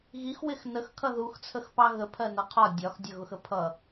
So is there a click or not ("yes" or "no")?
no